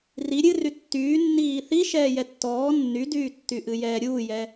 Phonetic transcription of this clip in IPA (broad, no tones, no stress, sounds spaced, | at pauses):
r i ɾʲ ɨ r y tː yː nː iː θ i ʃ ɛː j ɛ tː ɔː nː y d yː tː y ʔ ɨ j ɛː ɾʲ uː j ɛ